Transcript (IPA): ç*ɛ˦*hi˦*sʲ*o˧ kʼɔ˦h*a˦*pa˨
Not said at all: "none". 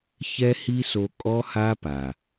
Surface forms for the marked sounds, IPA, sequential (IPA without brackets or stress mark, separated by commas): ɛ˦, s, a˦